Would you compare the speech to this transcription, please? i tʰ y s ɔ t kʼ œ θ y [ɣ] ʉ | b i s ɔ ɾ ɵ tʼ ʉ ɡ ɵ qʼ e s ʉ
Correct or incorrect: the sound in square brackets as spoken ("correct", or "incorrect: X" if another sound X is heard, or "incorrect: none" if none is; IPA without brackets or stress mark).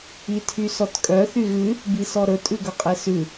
correct